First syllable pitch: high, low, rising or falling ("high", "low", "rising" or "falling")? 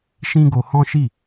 high